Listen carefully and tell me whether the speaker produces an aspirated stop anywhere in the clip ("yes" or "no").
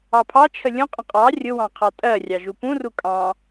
yes